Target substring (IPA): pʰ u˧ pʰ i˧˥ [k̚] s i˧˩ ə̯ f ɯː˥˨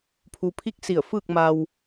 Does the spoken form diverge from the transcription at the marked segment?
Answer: no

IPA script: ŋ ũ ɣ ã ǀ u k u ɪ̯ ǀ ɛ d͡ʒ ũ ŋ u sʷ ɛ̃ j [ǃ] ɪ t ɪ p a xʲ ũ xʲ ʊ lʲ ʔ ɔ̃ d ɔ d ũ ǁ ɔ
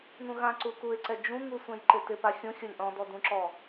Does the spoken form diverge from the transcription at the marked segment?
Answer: no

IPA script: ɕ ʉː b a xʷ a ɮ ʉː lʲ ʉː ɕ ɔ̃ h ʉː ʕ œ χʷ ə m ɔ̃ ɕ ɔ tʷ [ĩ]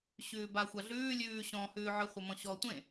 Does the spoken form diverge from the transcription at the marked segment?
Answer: yes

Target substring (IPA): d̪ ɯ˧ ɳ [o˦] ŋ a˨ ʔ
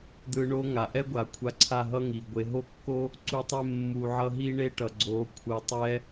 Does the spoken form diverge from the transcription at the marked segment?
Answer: no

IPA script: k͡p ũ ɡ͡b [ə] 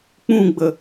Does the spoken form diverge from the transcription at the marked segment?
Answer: no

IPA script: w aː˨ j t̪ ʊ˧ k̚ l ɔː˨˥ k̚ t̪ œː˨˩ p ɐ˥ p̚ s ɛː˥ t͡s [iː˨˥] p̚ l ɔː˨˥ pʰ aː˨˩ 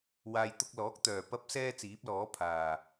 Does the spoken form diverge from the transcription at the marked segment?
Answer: no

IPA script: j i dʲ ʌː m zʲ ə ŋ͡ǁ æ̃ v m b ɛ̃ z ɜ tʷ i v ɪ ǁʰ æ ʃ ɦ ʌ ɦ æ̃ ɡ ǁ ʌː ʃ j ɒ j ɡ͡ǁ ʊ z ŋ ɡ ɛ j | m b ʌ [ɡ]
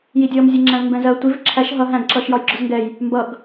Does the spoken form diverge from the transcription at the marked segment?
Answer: no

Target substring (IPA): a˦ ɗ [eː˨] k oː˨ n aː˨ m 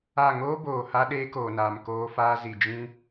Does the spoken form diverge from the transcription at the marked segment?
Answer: yes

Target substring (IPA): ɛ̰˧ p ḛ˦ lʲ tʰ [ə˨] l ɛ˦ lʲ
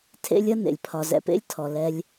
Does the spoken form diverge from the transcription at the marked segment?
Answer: yes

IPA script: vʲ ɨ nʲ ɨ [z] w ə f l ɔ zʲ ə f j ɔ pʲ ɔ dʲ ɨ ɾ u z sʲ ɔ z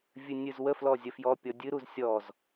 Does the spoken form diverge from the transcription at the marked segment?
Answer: no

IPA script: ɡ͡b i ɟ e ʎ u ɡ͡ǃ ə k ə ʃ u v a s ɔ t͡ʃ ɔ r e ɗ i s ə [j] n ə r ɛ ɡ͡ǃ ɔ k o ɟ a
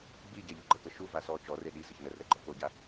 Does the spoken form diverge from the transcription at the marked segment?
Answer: yes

